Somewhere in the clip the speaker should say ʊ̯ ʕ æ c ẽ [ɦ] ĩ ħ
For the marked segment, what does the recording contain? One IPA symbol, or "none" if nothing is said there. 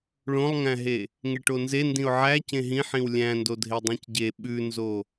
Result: ɦ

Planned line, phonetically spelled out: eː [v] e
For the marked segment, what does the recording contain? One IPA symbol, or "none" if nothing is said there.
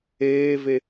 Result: v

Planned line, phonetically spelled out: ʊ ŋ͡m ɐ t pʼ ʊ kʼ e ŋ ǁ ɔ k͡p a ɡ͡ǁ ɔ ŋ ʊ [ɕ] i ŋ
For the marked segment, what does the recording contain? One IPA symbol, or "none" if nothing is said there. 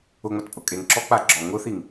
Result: θ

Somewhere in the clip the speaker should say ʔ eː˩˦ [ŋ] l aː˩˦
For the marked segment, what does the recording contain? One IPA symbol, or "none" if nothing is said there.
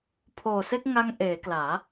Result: k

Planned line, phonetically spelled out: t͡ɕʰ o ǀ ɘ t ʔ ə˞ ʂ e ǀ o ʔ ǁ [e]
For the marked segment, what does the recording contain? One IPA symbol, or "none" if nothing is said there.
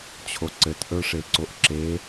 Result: e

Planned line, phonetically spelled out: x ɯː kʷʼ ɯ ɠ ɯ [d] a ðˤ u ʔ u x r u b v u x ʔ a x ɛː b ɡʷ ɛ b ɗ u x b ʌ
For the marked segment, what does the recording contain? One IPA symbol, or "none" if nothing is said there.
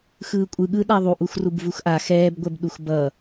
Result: ɗ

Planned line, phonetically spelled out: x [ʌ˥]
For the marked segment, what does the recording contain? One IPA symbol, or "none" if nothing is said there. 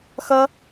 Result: ʌ˥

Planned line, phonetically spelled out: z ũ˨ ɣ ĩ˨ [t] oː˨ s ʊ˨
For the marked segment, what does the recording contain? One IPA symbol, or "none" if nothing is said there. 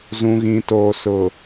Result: t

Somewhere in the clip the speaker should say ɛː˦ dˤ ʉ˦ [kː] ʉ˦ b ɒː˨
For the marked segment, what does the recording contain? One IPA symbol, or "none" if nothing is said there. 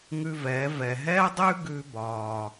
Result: ɡ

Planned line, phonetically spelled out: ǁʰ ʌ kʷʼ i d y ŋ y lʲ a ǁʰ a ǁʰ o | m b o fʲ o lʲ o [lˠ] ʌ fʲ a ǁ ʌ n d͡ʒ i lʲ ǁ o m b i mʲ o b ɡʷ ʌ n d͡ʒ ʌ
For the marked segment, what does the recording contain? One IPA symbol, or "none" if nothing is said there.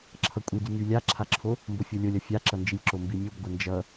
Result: lʲ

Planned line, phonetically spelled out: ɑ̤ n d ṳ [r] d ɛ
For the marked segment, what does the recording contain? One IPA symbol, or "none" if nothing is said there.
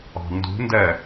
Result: n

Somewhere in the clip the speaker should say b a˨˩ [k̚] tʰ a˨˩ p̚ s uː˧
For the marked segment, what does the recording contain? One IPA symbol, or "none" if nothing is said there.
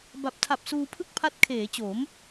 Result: p̚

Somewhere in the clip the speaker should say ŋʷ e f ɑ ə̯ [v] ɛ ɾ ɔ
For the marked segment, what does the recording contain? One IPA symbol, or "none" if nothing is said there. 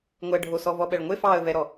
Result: v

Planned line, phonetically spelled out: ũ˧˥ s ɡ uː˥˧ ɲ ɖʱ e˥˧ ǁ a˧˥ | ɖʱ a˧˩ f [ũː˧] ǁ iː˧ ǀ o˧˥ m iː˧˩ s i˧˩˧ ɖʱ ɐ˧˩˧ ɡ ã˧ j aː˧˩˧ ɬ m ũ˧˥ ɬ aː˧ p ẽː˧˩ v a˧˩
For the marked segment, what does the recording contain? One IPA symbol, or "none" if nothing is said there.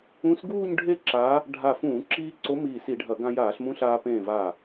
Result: ũː˧˩˧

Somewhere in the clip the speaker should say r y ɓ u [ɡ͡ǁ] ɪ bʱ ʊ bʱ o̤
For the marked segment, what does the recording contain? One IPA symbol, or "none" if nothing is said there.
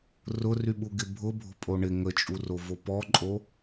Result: ɡ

